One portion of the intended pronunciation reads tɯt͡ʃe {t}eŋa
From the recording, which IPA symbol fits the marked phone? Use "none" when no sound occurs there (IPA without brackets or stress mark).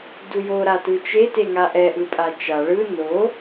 t